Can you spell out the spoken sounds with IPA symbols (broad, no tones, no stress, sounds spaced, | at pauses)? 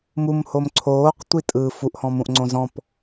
m u m h o m ǀʰ oː q tʷ i tʼ ɯ f u ʔ h ɔ̃ m ũ ʔ ŋ͡ǀ õ z ɔ̃ p